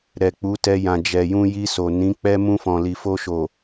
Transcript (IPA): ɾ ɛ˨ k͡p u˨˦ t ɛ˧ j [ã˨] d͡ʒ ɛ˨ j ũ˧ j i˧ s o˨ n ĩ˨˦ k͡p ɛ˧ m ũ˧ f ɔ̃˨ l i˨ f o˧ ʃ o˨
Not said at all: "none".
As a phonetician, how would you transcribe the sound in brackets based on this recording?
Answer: ã˨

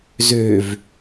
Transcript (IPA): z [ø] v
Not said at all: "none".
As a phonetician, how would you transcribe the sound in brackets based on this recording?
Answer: ø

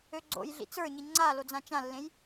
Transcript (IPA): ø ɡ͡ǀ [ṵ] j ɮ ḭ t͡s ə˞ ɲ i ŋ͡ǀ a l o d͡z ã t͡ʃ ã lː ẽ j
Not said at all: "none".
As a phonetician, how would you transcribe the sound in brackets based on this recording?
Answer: o̰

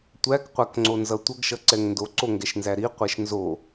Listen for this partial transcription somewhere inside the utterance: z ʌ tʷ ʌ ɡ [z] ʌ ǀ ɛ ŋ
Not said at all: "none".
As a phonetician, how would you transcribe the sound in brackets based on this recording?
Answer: ʃ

